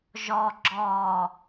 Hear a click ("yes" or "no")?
yes